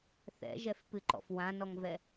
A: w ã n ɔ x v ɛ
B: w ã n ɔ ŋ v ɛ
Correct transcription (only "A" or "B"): B